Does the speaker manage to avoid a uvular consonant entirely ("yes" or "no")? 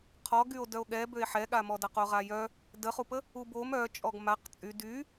no